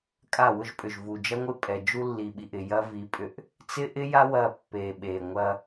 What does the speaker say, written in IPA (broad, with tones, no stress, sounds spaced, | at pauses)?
kʼ a˦˨ w ʊ˦ ʒ pʼ ʏ˨ ʒ v u˨ d͡ʒ ɐ˦ ŋʷ ɪ˦ pʼ ɛ˨ d͡ʒ u˦ lː i˨ ɓ i˨ ʔ ɪ˨ j ɐ˦ v i˨˦ pʼ ʏ˦ ʔ | t͡s ɪ˦ ʔ ɪ˦ j a˦ w ɐ˦˨ pː e˨ ɓ e˨ ŋʷ ɐ˦